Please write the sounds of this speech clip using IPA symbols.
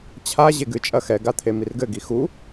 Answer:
t͡ɕʰ a ʑ e ɡ ɨ t͡ʃʼ ɐ x ɛ ɡ a t̪ʰ e m i r ɡ ɘ ɡ i x u

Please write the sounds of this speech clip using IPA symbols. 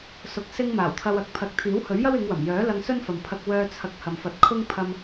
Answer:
s ʊ˧ k̚ s ɪ˥ ŋ m aː˨˩ w t̪ʰ ɐ˧ w ɐ˨˥ k̚ pʰ ɐ˨˥ k̚ t̪ʰ iː˨˥ w h ɵ˨˥ ɥ j ɐ˥ w ɪ˨˧ ŋ w ɐ˨˩ m j œː˨˥ l ɐ˧ ŋ s ɵ˥ n f ɐ˨ m pʰ ɐ˧ k̚ w œː˧ t͡sʰ ɐ˧ k̚ h ɐ˨ m f ɐ˨˥ t̚ kʰ ʊ˥ ŋ pʰ ɐ˧ m

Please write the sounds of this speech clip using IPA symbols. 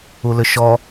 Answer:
u l ʏ ʃ ɔ

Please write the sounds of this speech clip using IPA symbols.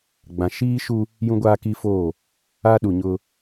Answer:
ɡ͡b ã˨ ʃ iː˦ ʃ u˦ | j ũ˦ ɡʷ aː˦ k i˦ f oː˦˨ | a˦ ɗ u˨ ɲ ʊ˦

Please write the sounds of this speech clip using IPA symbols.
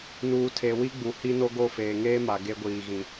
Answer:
n uː˨ tʰ e˨ w i˦ ɡ͡b u˨ h i˦ n o˦ ɡ o˦˨ f eː˨ ŋ eː˦ m a˨ ɡ e˦ ɡʷ iː˨ ɣ ĩ˨

